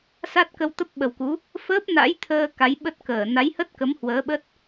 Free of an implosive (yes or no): no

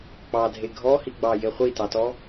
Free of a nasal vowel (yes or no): yes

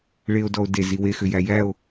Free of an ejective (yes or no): yes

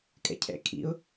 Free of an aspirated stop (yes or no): no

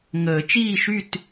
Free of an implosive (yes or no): yes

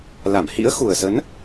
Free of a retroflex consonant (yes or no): yes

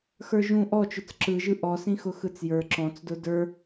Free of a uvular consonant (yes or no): yes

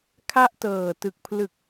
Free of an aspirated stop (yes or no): no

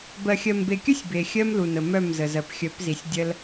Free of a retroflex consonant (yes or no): yes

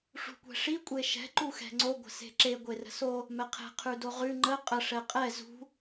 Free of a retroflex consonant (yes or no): no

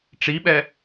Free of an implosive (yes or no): no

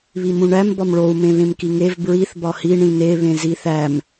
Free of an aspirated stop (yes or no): yes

